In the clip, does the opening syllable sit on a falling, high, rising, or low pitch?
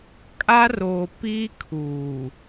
high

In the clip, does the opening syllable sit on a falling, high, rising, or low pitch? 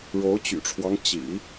rising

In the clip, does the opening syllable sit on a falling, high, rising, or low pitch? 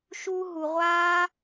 high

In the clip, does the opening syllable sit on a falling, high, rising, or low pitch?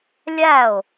falling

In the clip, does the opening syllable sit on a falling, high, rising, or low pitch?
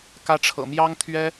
high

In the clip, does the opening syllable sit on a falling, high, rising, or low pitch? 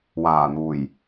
low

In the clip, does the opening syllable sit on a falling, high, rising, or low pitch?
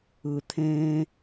low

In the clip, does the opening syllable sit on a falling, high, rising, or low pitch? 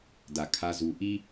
low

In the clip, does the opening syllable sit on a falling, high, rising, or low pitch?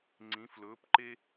rising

